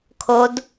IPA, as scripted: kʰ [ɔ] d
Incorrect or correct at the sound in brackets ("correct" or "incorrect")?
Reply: incorrect